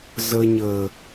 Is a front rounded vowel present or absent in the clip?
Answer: absent